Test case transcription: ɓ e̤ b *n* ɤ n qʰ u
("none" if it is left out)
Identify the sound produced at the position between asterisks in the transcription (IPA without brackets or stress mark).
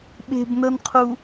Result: n